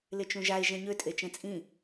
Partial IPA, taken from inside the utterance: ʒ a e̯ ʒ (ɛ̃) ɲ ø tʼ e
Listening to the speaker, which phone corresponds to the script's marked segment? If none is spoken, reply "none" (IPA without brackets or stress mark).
ɛ̃